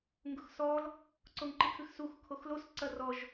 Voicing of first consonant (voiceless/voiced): voiced